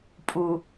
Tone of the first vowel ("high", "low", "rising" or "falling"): low